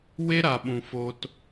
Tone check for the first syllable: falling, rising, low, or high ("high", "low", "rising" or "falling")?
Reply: high